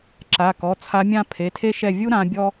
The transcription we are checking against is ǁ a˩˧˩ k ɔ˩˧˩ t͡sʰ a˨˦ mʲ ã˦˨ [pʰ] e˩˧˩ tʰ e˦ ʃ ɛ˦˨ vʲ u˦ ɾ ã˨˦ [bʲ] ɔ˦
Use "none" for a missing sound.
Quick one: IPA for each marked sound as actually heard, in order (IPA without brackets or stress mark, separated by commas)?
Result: pʰ, bʲ